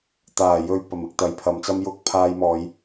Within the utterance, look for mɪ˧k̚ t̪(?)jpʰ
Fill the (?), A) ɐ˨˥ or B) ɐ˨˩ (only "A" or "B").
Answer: A